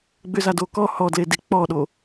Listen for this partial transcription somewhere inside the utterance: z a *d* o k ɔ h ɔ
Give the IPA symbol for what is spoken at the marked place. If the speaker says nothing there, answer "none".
d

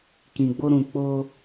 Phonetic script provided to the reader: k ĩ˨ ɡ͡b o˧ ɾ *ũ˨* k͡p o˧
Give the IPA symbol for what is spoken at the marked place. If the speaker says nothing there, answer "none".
ũ˨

